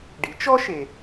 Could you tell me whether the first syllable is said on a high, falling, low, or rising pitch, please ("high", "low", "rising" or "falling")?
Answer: rising